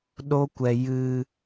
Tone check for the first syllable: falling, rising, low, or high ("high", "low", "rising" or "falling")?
high